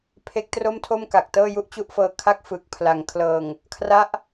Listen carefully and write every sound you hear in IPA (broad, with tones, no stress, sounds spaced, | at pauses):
pʰ e˦˥ k̚ t r o˥˩ m tʰ o˥˩ m k a˨˩ k̚ t ɤː˥˩ j u˥˩ ʔ t͡ɕ u˥˩ ʔ f ɤː˧ kʰ a˥˩ k̚ f ɯː˨˩ k̚ pʰ l a˩˦ ŋ kʰ l ɤː˨˩ ŋ | kʰ r a˦˥ ʔ